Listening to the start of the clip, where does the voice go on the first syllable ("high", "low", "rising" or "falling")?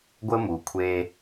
high